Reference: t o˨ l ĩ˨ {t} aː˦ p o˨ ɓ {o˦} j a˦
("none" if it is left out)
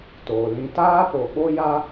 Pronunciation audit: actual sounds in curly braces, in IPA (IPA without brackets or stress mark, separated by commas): t, o˦